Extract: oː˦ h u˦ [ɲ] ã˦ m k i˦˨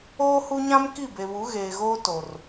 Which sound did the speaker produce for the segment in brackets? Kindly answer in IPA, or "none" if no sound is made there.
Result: ɲ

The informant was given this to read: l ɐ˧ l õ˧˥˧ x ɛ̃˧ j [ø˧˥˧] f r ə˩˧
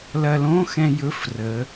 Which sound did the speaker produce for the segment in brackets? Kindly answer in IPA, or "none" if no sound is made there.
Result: ɵ˧˥˧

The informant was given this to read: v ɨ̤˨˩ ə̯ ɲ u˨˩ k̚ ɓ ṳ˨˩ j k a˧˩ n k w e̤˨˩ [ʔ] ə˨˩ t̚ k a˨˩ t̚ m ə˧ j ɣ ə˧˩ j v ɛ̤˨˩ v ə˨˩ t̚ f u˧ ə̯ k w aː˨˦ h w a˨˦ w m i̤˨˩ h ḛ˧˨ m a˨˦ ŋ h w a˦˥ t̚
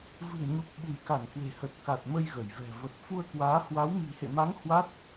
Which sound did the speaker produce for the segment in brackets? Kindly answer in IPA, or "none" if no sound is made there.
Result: h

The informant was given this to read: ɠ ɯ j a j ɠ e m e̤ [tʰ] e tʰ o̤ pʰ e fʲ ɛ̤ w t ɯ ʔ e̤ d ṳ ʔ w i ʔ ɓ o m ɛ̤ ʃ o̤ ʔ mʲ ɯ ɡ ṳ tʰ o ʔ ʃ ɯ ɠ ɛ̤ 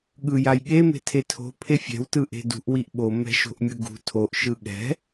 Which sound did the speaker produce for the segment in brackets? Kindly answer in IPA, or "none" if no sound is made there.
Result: tʰ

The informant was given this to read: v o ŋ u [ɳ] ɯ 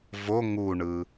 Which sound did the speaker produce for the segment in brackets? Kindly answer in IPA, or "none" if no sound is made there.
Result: ɳ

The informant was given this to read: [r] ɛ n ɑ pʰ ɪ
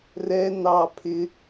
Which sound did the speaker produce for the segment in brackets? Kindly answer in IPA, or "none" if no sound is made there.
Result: r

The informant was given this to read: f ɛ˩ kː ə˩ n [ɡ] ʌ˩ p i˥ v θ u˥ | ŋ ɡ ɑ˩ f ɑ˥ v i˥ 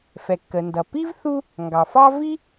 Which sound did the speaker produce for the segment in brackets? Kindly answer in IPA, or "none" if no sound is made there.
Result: d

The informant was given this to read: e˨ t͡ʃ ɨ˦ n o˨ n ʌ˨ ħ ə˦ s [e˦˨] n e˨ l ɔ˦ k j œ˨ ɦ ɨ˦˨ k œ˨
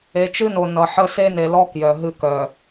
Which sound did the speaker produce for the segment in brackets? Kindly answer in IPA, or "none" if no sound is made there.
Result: e˦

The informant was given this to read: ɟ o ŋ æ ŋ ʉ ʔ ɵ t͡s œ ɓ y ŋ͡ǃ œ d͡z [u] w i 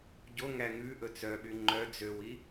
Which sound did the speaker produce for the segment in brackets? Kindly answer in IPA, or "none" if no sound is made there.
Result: ø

